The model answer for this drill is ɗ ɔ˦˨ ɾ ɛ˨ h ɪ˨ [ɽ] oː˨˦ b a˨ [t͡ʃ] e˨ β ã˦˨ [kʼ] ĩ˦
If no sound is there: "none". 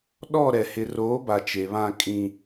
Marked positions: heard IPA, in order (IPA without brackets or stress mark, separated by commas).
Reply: r, t͡ʃ, kʼ